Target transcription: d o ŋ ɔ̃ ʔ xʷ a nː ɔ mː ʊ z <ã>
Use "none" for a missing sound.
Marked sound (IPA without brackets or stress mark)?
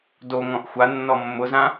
ã